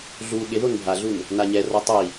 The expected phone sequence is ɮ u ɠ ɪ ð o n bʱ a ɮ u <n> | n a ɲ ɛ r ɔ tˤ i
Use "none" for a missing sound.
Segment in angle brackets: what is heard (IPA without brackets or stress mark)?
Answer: n